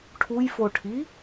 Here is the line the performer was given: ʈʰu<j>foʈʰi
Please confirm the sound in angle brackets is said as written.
yes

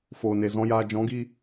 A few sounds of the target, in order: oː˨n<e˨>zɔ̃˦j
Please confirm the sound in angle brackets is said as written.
yes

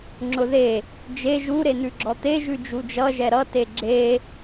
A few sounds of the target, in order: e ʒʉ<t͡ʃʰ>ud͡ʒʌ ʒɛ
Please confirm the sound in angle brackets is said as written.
no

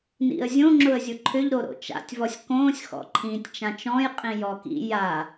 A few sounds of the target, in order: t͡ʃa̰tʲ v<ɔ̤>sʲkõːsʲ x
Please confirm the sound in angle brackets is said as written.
no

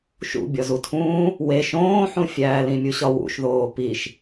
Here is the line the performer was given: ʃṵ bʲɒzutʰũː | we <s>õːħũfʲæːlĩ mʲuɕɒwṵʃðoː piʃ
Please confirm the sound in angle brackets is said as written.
no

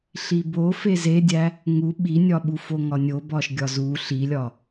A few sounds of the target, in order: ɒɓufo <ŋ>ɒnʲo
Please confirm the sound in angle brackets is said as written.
yes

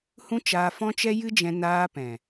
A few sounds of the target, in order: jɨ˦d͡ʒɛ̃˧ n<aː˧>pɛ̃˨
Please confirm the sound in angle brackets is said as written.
yes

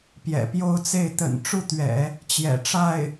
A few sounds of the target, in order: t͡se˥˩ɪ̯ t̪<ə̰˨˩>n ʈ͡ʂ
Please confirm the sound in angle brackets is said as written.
yes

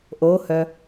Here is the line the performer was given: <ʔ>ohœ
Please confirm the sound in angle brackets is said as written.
yes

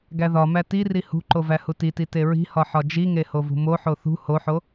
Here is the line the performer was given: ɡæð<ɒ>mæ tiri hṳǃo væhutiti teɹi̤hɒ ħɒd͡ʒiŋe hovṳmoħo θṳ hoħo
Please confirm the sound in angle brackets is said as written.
yes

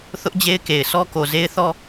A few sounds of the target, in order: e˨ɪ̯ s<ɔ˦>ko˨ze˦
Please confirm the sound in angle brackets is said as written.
yes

